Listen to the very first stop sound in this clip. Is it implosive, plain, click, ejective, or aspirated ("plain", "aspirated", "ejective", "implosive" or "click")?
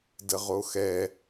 plain